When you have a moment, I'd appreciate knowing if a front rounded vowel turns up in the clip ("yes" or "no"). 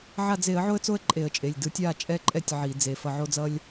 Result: no